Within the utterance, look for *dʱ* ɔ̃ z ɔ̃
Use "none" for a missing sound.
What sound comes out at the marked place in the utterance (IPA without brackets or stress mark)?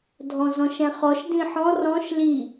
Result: dʱ